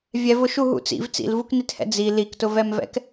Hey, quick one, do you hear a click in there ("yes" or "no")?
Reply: no